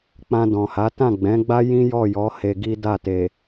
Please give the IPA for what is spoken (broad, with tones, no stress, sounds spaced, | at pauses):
k͡p ã˧ d ɔ̃˨ h a˨˦ t ã˦˨ ɡ͡b ɛ̃˨˦ ɡ͡b a˦ j ĩ˦ j ɔ˦˨ j ɔ˨˦ h e˧ ɡ i˦ d a˦˨ t e˨